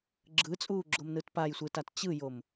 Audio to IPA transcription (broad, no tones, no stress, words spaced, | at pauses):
ɡ͡ǁɯt͡sʼuːɡ͡ǁomnɯt pajsʷɯtat t͡ɕɯjom